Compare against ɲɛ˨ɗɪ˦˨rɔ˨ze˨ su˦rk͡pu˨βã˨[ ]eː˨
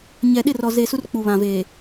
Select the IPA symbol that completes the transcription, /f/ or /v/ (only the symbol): v